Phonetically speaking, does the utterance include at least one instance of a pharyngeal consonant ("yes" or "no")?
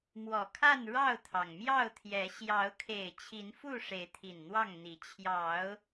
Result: no